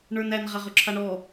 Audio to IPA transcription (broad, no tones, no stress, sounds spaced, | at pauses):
ɳ ə˞ n æ n ʁ a ʁ ɵ ǁʰ a ɳ ɔ